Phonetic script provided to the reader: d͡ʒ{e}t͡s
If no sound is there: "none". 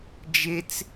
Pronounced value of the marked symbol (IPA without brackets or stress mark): e